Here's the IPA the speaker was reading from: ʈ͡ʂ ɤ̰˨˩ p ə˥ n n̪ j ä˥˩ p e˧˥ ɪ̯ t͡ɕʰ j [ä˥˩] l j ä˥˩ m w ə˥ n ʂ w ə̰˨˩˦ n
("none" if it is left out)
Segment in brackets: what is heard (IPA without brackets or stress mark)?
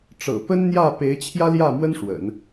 ä˥